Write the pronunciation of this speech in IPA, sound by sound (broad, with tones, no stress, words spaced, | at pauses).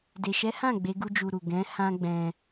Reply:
de˨ʃɛ˨˦hã˦˨ ɡ͡be˨˦ ɡu˦d͡ʒu˧ɾu˨ ɡɛ̃˨˦ hã˦ɡ͡bɛ̃˧